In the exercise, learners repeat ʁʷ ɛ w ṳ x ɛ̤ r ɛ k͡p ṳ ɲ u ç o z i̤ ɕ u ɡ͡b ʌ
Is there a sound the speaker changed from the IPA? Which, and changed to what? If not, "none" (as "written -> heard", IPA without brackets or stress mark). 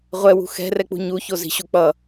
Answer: ɡ͡b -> k͡p